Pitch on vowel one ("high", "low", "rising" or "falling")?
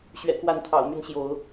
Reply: low